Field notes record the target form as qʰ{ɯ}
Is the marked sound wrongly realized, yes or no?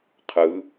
no